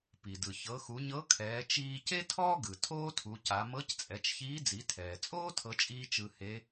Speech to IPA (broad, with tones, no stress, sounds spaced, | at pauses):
p i˩ d ɯ˩ ç ɤ˩˧ x u˩˧ ɲ ɤ˧˥ kʰ ɛː˩˧ t͡ʃ iː˧ c e˥ tʰ ɔː˥ ɡ ɯ˩ tʰ oː˥ tʰ u˩˧ c a˩˧ m ɤ˧˥ c t͡sʼ ɛ˩˧ t͡ʃ ç iː˧˥ d͡z i˩˧ tʰ ɛː˩ t͡sʼ oː˥ tʰ ɤ˧˥ t͡ʃʼ iː˥ t͡ʃ ɯ˧ h e˧˥